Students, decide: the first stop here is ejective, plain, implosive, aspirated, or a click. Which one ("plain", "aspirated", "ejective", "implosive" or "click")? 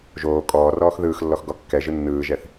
ejective